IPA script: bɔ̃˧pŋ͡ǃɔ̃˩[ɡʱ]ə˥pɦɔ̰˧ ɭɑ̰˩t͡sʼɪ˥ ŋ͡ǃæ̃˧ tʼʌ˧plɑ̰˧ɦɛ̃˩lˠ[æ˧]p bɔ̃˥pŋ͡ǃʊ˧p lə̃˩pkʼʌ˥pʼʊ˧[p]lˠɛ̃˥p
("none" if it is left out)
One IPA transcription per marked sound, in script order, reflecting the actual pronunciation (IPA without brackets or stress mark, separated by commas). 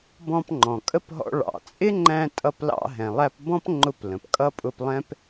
kʼ, æ˧, p